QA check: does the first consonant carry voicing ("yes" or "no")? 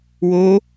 yes